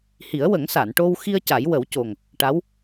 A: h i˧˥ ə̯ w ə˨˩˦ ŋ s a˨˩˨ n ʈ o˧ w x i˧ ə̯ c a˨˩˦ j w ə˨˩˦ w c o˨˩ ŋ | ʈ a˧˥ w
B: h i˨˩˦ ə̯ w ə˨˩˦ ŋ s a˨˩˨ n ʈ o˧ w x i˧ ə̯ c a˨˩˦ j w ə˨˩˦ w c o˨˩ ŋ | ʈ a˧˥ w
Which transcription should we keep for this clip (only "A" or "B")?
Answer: B